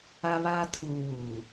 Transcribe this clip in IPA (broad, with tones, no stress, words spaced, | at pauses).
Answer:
a˦βaː˦tʰuː˨ wuː˨